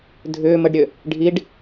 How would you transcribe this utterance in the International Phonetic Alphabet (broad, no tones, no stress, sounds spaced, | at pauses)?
dʱ ʏː m ə ɖ ɾʲ ø | ɖʱ i ɖ